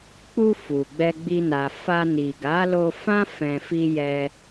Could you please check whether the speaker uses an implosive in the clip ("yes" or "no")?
no